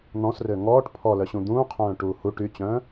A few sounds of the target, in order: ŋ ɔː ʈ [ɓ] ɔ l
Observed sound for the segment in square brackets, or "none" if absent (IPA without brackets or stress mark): pʰ